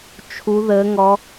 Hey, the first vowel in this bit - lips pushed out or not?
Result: yes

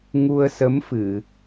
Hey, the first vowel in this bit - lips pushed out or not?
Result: yes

